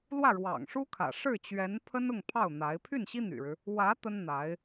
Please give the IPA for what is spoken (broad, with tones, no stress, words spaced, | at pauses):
lwä˥˩ɻwɑ̰˨˩ŋʂu˥kʰä̰˨˩ ʂɻ̩˥˩t͡ɕɥɛ˧˥npʰə˥n ʊ˥˧ŋpʰɑ˥˩ʊ̯n̪a˧˥ɪ̯ pʰy˥˩nɕi˥ n̪y̰˨˩ɻɻ̩˦ | wä˧˥ t̪ə˥nn̪a˧˥ɪ̯